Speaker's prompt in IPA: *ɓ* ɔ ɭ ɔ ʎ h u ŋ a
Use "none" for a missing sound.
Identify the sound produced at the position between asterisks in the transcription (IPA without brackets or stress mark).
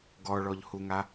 ɡ